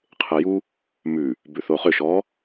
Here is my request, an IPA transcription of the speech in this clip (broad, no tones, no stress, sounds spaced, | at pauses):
qʰ e j u | m ʉ | b ʉ θ o χ ʏ ʃ ɔ